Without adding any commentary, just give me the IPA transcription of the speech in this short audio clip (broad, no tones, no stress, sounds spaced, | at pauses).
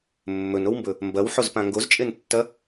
mː ɵ n o w m b ɵ | m b ɐ w ħ o z p ã ŋ ɡ o z t͡ʃʼ e n tː ɐ